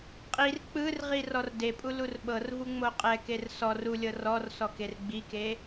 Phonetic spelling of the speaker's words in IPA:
qʼ i r k͡p ɯ r ʁ i r ɔ r d e pʼ u l u r ɓ ɤ r v u ŋ͡m o qʼ ɛ k e r s ɔ r u lʲ ɤ r ɔ r s ɔ k e r ɡ͡b i k e

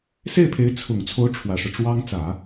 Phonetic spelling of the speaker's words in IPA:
s e˥˩ ɪ̯ pʰ e˧˥ ɪ̯ t͡sʰ ʊ˨˩ ŋ t͡sʰ o˧˥ ʊ̯ ʈ͡ʂʰ w ä˨˩ ʂ ɻ̩˦ ʈ͡ʂ w ɑ˥ ŋ t͡s ä˨˩˦

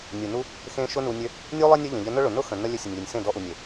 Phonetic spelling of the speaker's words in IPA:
nʲ u˨ n u˦ | x ẽ˧ ʃ ʊ˦ n u˧ nʲ ø˦ | nʲ u˦ lˠ e˦ nʲ œ˦ ʎ ə̃˨ ʎ ə˧ n ʊ˦ ɭ ʊ˨ n ʊ˦ x ə̃˨ n ə˧ lʲ ø˧ sʲ ʊ˨ nʲ lʲ ø˨ nʲ s ẽ˦˨ d ɔ˧ ʔ u˨ nʲ e˨

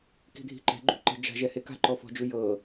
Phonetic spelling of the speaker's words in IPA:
k i̤ dʱ i̤ ǃ ɛ̤ ɡ͡ǃ ṳ ǃ ɛ̤ d͡ʒ a̤ ʒ ɛ h e k a̤ ǃ ɔ f ɔ̤ d͡ʒ u j ɤ

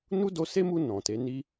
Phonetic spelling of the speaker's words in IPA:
n u˦ d o˧ s e˦ m u˧ n ɔ̃˨ t e˨˦ n i˧

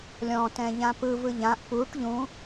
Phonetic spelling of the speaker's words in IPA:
lʲ ɔ̃ t ɛ̃ ʎ ã p ɯ v ɯ ʎ ã ʔ p u ʈ ʎ ũ

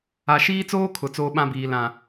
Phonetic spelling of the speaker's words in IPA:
a˨ ʃ iː˦ t͡s oː˦ kʰ ʊ˨ t͡s oː˦ ɓ ã˦ b iː˨ l ã˨

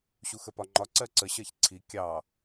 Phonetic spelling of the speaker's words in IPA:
ɕ u x ə p ɒ ŋ͡ǃ ɒ ǀ ɜ ǀ ə ɕ ɜ ç ǀʰ i kʲ ɑ

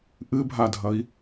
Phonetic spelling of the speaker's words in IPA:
ʔ ɨ bʱ a dʱ ɐ i̯

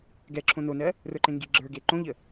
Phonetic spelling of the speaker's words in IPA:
ɡ ɛ ǁʰ õ n o n ɜ | r ə˞ ǃ ẽ ŋ ɡ i ɡ͡ǁ ə˞ ɡ e ǃ õ ʎ ə

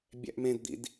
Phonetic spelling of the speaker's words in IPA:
bʲ æ̰ ʔ m ẽ d d̪ ḭ d

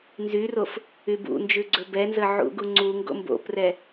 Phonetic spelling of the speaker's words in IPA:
n z y r o f | y b ṵ n d͡ʒ ʉ ɡ͡ǀ ɵ b ɛ n z ə ʕ ṵ ɡ u ŋ͡ǀ u ŋ ɡ o̰ m b o̰ p r ɛ

